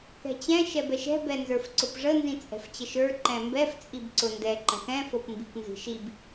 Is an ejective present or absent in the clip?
present